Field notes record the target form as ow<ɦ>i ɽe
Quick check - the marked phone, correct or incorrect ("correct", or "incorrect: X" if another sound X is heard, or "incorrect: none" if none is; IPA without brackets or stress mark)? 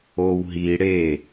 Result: correct